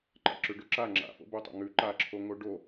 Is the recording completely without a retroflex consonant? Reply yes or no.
no